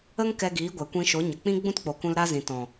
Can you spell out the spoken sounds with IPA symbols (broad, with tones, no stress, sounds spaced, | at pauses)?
ə˦ ŋ k ɛ˧ ɡ iː˨˦ ɡʷ ɛ˨ kʷ ĩ˧ ʃ o˨˦ ɲ ə˨ k͡p ĩ˦ ɡ͡b ũ˦ t k͡p o˨ k ũ˧ l ɾ a˦ z ĩ˨ t ɔ̃˨